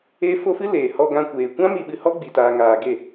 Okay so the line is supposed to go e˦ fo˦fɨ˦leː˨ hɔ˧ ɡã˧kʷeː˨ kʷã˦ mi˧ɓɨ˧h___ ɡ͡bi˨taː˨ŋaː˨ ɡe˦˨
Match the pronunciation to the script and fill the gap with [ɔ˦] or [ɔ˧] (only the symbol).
ɔ˦